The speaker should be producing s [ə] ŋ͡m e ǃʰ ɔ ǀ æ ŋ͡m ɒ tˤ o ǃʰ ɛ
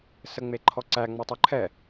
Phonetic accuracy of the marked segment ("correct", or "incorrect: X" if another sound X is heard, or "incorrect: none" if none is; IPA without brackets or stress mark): correct